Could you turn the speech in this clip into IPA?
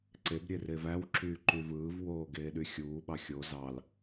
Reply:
ǀebɾʲere væwǁyːǃy vɯːvwoːɡeːɗy xʲuːɓɑ xʲo zɑl

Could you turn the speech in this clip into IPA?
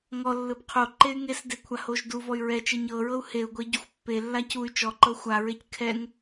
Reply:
ŋɔlːɯb qʰo ǃey̯ŋesde kʷʰahoʒduvɔy̯ ɹɛt͡ʃe ɲɤɹɤu̯ heu̯ɡʷe ɟuxʷpːelːa cuy̯ t͡ʃɔǃɤ xʷaɹec kʰɛŋ

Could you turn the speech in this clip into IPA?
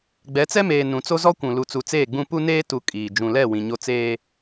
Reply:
ɡ͡bɛ˨˦t͡sɛ˦meː˨ nũ˨t͡so˦zɔ˦kʷũ˨ lu˨t͡su˨t͡seː˦˨ɡ͡bũ˦ pu˦neː˦tu˨ kʼiː˨ d͡ʒũ˨lɛ˦˨ wĩ˨ɲo˦ t͡seː˦

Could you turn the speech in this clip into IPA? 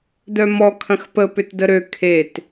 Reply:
dœmɔ kʰɐ̃xpə pʏtdəɾø kʰet

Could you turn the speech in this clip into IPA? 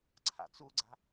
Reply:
ǀʰa̰t͡suɡ͡ǀa̤

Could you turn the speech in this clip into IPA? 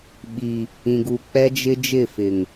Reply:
ɓi˨ | ĩ˨ɡu˨ k͡pɛ˦ d͡ʒɪ˦d͡ʒɪ˦˨ fɪ˨ŋ

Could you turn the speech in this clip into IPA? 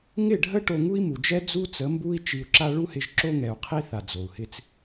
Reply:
ŋɪ˦˨ɖʱə˦ ʈo˧ŋu˦i̯mu˨d͡ʒɛ˦ d͡zu˦t͡sə˨˦mbu˦i̯ t͡ʃi˧u̯ǁa˦ ɭu˦hɪ˧ʒǁo˦ŋɛ˨u̯ qʰi˦θa˨ d͡zo˨u̯hɪ˦t͡s

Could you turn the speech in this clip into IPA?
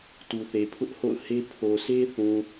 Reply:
tu˨θe˨pʰʊ˦ʔ ho̰˦˨ʊ̯he˦ pʰo˨ sʰe˦θũ˨

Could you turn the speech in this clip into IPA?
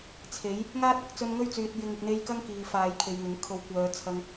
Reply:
t͡sʰe˨˥j | ŋaː˥t̚ɐ˧k̚ t͡sɵ˧nŋɵ˥ɥt͡syː˨t̚ jɪ˨˧ŋɪ˨k̚n̪e˧jkɐ˥ŋ kiː˨faː˨˧jkʰe˨jŋɪ˨˥ŋ kʰo˨˧wkʷœː˨˧ t͡sʰɐ˥ŋ

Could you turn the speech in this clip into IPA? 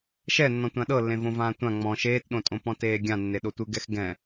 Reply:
ʃɛ nːɔ̃tʷãɗɤlːẽ võvãːtʷã ŋ͡mɔ̃ ʃeːtɗõtʼõpɔ̃ teːɡʲãnːe ɗotʷɯɡɛx ɡɛ̃

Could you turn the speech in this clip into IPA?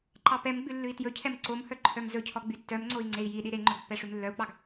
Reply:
ǃɑpɛmɡ͡bʉ lːʉi̯tjɵcʰɛm ǀomhœ ǃʰœmzɵcʰɔ ɡ͡bytːœmŋ͡ǀoi̯ ŋ͡ǀei̯jiɗi ɾeŋ͡ǃɵɡ pːɛʂʉmlːœu̯k͡pɑɡ

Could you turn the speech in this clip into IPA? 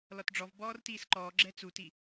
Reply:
lɔtɖ͡ʐɔv bɔːrtiːsǃɔː ɡ͡ǁɛt͡suti

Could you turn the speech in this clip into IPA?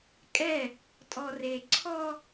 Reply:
kʼɛ | tʼɔre ǀʰɔ

